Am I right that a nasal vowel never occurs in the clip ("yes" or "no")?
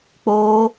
yes